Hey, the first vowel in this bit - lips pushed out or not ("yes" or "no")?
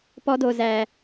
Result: yes